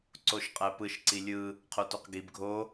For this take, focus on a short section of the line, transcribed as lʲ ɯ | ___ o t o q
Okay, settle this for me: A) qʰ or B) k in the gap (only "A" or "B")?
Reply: A